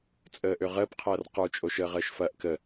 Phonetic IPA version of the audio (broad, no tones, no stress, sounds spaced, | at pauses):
t͡sʼ əː ʔ ø ʁ əː p qʰ ɐː r q ə˞ t͡ʃʼ o ʃ əː ʁ əː ʃ f ɐː ʔ k ə